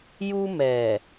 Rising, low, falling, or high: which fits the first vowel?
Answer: high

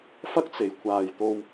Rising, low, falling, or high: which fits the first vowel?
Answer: high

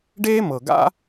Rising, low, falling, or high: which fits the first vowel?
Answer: high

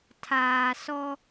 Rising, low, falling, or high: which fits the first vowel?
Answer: low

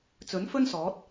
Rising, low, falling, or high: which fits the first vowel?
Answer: rising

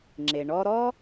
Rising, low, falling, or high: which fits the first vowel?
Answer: low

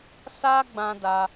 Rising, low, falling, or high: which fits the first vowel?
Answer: high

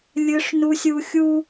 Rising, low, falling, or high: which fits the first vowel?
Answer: high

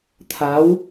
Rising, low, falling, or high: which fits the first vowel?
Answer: rising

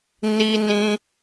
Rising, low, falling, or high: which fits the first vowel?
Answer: high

